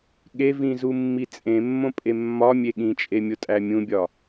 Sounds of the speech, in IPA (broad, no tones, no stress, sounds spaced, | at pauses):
ɠ e v ĩ z u mː i t͡sʼ ẽ mː õ pʼ e mː ɒ mʲ e ɠ ĩ t͡ʃʼ e mʲ o tʼ æ mʲ ũ bʲ ɒ